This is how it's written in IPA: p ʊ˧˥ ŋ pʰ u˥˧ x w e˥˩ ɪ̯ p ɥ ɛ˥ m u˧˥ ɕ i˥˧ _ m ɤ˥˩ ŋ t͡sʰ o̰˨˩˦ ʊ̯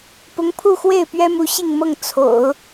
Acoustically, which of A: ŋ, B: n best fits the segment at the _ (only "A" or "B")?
A